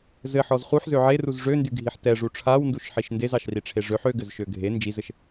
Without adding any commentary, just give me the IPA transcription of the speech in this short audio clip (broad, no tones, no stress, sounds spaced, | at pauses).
z ɘ ħ ɔ z χ u ħ z ø ʕ e r u z ʐ ø n d y ɡʱ i ħ t ɛ ʐ u ʈ͡ʂʰ a w n d u ʃ ħ i ʃ n d e z ɑ ʃ r i ʈ͡ʂʰ e ʐ ø ħ ø ɡ ɘ z ʃ ø ɡʱ e n d͡ʒ i z ɘ ʃ